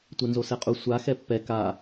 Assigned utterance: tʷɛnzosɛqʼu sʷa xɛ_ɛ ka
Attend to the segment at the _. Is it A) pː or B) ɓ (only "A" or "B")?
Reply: A